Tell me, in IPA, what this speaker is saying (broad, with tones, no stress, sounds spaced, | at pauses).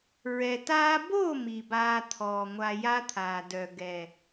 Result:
ɹ ɛ˨ t aː˦ b o˦˨ m i˨ b aː˧ t̪ʰ ɔː˨ ŋʷ a˧ j a˦ t̪ʰ aː˨ d œ˨ ɡ ɛ˨